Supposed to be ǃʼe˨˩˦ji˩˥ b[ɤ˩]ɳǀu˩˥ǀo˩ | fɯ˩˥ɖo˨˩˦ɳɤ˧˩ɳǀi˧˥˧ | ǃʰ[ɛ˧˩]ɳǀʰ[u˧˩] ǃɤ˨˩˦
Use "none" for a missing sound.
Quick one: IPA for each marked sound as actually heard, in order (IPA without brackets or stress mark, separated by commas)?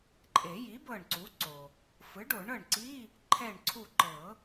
ɤ˧˩, ɛ˧˩, u˧˩